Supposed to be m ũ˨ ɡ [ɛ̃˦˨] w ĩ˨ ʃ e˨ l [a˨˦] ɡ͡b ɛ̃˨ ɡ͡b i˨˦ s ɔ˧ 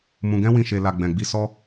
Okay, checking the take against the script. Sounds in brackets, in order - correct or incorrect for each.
incorrect: ɛ̃˧, incorrect: a˨

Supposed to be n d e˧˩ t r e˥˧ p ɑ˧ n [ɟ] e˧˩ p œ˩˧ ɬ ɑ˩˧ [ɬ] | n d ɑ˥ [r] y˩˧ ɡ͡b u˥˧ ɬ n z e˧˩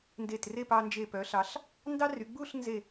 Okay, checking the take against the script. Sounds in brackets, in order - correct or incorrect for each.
incorrect: d͡ʒ, correct, correct

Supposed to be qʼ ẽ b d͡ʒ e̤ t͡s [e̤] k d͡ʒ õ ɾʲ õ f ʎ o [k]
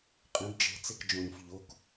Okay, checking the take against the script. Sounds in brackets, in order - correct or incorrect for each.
incorrect: e, correct

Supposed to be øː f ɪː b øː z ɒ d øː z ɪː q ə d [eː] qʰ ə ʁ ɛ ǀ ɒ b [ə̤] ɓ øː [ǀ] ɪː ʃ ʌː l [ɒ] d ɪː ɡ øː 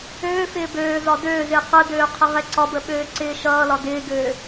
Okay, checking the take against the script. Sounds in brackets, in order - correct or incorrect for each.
incorrect: øː, incorrect: ə, correct, correct

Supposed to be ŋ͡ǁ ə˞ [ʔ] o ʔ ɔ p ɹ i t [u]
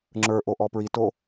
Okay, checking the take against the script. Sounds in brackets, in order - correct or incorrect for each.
correct, incorrect: o

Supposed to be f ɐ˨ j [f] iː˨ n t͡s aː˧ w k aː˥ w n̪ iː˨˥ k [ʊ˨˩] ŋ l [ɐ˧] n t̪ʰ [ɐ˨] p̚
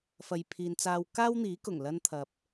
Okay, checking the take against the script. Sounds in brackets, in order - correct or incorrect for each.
incorrect: pʰ, correct, correct, correct

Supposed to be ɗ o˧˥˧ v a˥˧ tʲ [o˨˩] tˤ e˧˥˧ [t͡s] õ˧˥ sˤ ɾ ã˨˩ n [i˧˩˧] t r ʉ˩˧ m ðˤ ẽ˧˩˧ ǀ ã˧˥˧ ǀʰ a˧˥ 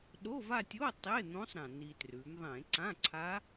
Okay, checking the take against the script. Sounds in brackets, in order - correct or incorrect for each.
incorrect: o˧˥˧, incorrect: n̪, incorrect: i˨˩

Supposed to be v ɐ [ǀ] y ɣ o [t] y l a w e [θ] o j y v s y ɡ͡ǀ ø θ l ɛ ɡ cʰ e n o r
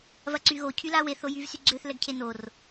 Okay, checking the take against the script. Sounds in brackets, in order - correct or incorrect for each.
correct, incorrect: cʰ, correct

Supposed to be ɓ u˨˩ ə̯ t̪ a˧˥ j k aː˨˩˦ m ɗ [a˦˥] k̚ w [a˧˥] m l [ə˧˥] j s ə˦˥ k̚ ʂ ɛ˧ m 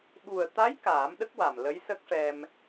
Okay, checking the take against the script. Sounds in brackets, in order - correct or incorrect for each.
incorrect: ə˦˥, incorrect: a˨˩, correct

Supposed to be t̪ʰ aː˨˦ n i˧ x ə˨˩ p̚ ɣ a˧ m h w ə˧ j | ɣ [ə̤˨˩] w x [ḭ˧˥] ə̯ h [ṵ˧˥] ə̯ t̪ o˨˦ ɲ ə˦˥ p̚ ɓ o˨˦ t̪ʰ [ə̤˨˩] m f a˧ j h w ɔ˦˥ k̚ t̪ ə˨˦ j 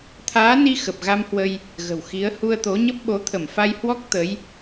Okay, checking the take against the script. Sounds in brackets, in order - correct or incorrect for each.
correct, incorrect: i˨˦, incorrect: u˧, incorrect: ə˧˩

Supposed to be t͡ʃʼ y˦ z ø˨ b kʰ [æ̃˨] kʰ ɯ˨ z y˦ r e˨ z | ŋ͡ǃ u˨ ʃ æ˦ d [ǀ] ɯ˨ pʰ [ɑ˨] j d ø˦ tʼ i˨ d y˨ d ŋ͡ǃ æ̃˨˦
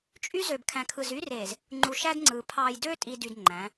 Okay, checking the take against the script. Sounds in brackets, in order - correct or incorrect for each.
correct, incorrect: ŋ͡ǀ, correct

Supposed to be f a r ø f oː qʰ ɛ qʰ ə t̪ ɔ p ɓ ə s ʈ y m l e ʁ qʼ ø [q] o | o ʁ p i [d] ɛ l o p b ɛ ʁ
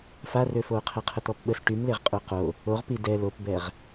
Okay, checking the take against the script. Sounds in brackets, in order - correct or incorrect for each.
correct, correct

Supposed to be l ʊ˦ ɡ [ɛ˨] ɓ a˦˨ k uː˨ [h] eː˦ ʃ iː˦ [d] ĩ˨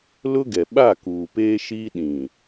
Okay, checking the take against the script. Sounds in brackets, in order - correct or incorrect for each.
correct, incorrect: p, incorrect: ɗ

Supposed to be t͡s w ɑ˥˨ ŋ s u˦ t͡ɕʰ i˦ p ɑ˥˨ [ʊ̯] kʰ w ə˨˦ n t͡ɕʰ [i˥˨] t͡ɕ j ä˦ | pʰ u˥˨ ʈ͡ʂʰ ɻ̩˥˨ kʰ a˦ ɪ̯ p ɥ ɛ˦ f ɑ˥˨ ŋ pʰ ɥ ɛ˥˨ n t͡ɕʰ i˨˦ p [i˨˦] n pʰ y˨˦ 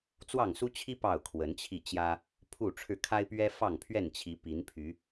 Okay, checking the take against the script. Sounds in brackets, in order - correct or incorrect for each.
correct, correct, correct

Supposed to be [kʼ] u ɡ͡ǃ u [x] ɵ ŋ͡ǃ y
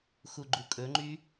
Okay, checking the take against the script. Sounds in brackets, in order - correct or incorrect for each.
incorrect: x, incorrect: kʼ

